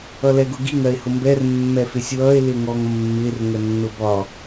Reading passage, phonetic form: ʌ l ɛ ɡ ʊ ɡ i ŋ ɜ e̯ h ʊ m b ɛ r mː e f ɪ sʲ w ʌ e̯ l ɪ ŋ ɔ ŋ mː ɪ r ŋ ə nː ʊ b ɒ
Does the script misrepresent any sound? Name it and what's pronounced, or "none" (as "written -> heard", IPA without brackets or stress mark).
e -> ɛ